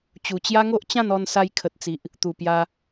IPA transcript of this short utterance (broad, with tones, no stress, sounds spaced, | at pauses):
t͡ɕ u˨˩ t͡ɕ j a˦ ŋ o˦ ʔ t͡ɕ ã˥˧ n ɔ˧ n s a˧ j kʰ ə˨ t̚ t͡s i˨ ʔ | t̪ u˨˩ p j a˧